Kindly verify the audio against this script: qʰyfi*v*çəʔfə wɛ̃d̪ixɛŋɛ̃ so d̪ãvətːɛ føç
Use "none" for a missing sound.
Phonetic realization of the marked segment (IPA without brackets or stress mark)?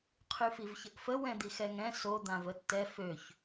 v